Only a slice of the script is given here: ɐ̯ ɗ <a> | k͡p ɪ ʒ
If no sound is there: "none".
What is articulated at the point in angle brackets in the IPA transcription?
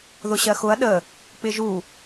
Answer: ə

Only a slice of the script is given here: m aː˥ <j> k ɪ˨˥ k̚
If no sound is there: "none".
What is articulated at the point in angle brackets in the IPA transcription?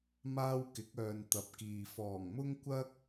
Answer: w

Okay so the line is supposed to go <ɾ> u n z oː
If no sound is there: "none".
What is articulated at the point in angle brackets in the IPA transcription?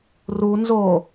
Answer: r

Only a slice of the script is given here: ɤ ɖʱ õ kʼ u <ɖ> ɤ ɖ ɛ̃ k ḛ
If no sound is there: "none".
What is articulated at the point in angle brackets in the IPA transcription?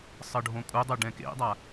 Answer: dˤ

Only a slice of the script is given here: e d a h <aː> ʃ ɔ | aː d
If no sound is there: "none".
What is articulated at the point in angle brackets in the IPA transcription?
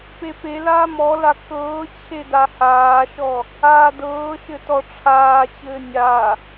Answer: aː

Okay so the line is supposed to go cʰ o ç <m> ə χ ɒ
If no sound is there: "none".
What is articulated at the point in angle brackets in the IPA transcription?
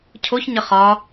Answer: ɲ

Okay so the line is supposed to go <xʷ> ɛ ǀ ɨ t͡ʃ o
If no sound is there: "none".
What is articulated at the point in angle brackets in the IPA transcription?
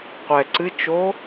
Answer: qʷ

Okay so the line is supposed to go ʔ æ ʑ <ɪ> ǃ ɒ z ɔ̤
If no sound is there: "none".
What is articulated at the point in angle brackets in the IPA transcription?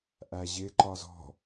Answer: ɪ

